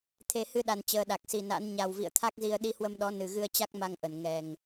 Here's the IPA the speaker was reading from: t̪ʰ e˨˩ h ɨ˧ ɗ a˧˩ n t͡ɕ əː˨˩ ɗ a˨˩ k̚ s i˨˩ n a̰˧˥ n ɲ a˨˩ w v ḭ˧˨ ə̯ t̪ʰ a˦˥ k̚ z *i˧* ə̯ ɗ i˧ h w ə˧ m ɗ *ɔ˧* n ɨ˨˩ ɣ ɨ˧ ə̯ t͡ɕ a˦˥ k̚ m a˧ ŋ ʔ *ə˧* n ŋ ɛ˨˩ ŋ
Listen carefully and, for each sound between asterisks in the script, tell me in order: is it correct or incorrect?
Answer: correct, incorrect, incorrect

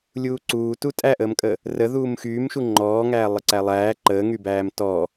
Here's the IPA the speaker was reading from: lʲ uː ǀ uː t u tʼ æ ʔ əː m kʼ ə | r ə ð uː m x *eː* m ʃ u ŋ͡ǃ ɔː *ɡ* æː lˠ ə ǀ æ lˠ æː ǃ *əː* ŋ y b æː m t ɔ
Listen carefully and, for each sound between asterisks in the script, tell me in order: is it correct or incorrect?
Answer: incorrect, incorrect, correct

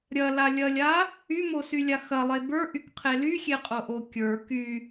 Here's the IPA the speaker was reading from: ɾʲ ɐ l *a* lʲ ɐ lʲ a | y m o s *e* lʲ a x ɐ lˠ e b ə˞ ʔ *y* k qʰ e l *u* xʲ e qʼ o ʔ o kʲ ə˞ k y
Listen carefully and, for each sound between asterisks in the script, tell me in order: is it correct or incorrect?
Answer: correct, incorrect, correct, incorrect

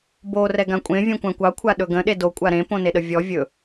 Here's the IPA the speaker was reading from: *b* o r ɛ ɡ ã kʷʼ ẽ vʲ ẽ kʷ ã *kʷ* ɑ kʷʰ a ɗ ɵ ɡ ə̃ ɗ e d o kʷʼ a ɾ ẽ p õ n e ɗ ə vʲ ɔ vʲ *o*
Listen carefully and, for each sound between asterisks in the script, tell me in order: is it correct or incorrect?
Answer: correct, correct, incorrect

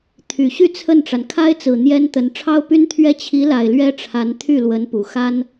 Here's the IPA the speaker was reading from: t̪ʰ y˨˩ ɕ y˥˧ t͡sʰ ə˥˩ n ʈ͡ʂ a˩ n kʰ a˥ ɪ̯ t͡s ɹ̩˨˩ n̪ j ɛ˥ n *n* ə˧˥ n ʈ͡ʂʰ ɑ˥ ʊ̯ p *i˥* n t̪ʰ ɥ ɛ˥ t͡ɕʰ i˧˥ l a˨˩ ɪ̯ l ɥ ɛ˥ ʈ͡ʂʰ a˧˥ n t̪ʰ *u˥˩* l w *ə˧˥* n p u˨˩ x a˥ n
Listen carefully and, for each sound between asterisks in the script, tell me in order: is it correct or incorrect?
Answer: incorrect, incorrect, incorrect, correct

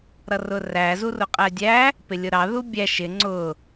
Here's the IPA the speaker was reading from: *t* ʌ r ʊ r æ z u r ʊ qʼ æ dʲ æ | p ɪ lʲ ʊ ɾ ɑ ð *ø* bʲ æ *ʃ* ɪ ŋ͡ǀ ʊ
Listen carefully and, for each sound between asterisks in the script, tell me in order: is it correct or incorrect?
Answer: incorrect, incorrect, correct

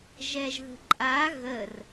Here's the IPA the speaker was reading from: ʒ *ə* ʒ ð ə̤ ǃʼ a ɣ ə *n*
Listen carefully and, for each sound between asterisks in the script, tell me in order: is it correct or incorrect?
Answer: incorrect, incorrect

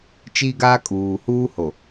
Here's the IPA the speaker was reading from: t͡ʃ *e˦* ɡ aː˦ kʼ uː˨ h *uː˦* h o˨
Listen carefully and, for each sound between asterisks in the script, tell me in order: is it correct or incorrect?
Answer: incorrect, correct

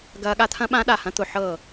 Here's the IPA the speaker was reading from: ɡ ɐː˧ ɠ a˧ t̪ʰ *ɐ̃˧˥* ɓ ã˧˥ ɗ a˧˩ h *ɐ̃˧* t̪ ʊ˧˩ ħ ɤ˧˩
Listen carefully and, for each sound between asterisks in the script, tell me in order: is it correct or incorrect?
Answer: correct, correct

